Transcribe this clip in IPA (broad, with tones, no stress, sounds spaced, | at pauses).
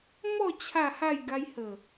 m ɔ˥˧ t͡ɕʰ a˥˧ h a˥˧ j ɡ a˧ j h ə˨˩